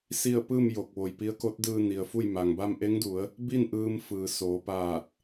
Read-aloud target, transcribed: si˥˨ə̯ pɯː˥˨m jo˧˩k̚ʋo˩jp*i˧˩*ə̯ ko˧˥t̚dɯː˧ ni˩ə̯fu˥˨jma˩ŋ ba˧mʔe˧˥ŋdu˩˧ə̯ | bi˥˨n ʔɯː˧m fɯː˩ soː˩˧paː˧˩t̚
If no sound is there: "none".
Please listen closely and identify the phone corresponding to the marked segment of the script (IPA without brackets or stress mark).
i˧˥